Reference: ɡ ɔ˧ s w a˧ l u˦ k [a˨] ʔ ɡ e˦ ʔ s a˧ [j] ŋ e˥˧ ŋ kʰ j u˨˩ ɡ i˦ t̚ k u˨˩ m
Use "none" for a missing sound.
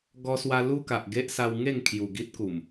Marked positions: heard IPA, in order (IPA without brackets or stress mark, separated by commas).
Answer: a˨, w